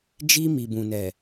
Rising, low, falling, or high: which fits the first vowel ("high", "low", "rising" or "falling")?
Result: high